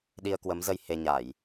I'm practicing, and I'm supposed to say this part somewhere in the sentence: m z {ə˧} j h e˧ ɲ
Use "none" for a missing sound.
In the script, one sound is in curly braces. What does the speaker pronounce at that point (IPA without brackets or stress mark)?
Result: ə˧